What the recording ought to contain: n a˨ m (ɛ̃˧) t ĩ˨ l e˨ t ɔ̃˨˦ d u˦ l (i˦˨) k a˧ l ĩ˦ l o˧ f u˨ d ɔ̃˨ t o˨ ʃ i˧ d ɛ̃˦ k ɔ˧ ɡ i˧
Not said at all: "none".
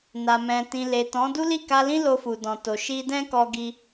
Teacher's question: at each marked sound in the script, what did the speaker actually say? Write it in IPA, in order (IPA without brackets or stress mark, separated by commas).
ɛ̃˨, i˦˨